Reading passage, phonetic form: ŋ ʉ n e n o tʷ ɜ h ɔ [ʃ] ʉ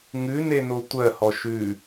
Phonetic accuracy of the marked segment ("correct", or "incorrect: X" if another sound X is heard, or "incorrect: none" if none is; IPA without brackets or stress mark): correct